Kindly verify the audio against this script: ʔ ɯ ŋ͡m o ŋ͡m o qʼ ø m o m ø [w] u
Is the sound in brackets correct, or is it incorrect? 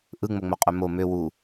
correct